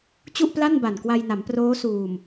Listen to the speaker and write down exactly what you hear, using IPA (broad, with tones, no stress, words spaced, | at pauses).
t͡ɕu˥˩ʔpla˥˩nba˨˩nkwa˧j na˩˦mproː˦˥ suː˨˩m